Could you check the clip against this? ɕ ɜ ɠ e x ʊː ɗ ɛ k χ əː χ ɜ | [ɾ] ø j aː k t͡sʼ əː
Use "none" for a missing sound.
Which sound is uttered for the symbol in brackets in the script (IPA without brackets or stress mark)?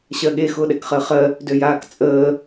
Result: d